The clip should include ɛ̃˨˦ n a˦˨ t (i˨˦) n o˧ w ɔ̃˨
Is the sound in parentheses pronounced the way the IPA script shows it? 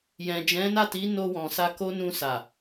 yes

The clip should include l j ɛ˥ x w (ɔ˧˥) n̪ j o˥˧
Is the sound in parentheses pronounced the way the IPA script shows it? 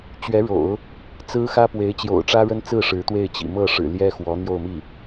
yes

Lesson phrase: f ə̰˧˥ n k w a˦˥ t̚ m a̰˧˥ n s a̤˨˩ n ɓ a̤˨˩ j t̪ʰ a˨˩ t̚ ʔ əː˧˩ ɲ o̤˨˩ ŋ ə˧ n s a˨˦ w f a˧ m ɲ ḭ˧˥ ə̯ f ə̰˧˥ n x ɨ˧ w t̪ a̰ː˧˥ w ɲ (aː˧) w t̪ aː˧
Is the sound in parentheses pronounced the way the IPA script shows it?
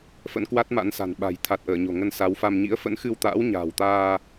no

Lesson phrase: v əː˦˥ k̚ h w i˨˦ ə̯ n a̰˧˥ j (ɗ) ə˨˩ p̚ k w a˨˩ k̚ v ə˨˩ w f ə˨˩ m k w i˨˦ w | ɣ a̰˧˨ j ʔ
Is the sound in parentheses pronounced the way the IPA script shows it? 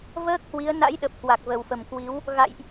yes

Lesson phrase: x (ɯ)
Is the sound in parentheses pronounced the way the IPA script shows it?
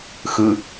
yes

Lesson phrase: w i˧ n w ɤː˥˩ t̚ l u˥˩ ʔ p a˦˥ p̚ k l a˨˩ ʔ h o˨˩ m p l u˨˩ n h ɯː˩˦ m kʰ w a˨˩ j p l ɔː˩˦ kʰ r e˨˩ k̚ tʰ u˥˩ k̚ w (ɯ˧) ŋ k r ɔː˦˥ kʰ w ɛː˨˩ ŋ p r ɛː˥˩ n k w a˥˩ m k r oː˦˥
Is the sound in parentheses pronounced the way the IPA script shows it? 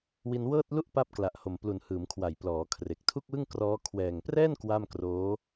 no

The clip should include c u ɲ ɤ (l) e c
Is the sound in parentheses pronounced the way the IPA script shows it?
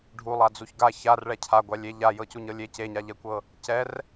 no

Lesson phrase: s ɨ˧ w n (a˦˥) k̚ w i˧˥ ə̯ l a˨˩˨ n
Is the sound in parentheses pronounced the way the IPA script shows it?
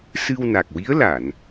no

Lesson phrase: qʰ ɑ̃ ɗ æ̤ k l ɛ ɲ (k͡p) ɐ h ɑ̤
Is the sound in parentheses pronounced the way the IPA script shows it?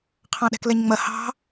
no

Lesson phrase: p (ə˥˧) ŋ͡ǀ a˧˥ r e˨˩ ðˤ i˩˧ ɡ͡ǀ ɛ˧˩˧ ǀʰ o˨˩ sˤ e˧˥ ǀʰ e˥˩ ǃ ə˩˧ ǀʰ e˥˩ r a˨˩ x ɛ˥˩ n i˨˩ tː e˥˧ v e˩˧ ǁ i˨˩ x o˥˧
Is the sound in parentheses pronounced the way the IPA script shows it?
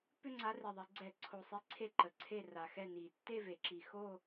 no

